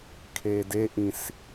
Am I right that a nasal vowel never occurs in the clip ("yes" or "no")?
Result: no